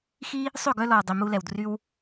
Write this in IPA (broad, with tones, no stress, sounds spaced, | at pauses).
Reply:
x i˦ | sˤ ø˦˨ ɡ œ˧ l ɔ˨ w dˤ i˨ m u˧ l ɛ˨ w d r y˦ w